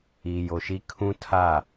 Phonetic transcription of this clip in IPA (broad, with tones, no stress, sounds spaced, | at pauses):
iː˨ j o˨ ʃ i˦ kʰ ũ˦ tʰ a˦˨